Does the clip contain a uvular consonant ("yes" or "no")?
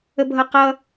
yes